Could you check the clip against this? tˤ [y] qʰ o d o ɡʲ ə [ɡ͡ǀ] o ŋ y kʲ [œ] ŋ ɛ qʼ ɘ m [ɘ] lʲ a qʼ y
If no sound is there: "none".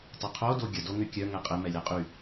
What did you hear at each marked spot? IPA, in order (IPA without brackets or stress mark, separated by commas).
y, d, œ, ɛ